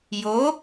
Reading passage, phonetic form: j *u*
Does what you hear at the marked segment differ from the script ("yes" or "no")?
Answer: yes